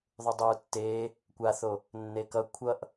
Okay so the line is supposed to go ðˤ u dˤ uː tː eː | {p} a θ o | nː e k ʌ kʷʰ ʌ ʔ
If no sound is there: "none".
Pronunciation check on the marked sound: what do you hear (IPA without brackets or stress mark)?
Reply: kʷ